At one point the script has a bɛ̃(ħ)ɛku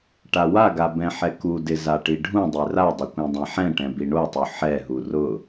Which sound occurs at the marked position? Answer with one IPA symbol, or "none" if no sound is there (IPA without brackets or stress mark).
ħ